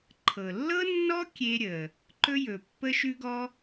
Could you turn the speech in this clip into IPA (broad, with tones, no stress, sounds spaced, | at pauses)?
ǃʰ ɤ˩ lː ɤ˥ nː ɔ˥ kʲ e˥ ɾʲ ə˩ | ǃ ɵ˥ j ɵ˩ pː ə˥ ʃ ʉ˥ ɡ ɔ˥